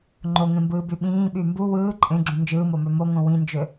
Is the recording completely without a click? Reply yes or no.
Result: no